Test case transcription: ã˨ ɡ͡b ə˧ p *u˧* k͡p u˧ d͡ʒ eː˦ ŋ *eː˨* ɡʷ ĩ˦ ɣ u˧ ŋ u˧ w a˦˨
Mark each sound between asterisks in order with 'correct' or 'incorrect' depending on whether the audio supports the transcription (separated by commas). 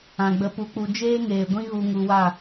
correct, correct